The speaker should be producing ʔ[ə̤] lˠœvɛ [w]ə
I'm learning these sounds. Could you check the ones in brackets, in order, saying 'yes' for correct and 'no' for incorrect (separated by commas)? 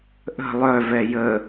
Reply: yes, no